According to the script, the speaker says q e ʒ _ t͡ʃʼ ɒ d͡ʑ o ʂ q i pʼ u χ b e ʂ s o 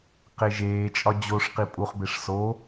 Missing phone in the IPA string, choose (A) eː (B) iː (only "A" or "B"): A